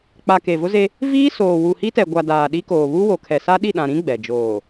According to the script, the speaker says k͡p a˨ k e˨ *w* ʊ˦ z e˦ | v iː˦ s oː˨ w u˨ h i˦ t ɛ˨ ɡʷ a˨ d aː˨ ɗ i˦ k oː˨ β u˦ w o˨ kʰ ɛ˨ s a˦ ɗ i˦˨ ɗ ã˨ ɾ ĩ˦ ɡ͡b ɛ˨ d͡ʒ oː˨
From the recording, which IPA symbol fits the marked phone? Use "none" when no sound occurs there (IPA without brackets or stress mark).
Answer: v